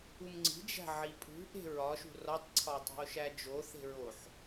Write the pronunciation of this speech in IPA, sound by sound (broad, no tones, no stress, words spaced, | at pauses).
umŋ͡ǀi̤ d͡ʒæ̤ʕipʼṳ ʔe̤ɹɒʃṳ rɒtˤǀʰɒo̯tˤæ̤o̯ʃæ d͡ʒo θe̤ɹoħ